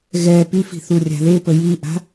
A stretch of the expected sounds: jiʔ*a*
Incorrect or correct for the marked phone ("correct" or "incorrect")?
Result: incorrect